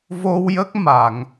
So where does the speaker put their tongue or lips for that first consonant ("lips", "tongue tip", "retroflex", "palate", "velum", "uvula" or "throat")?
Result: lips